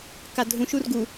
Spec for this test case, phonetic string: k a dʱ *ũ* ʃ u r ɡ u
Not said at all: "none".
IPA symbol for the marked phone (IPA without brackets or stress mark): ũ